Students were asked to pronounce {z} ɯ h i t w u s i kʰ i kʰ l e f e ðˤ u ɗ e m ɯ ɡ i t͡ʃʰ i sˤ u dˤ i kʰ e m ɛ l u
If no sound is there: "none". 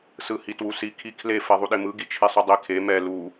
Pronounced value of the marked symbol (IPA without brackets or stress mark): s